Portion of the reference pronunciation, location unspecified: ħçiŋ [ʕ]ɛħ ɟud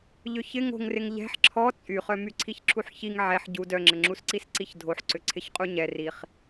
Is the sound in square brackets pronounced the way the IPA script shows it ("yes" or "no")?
yes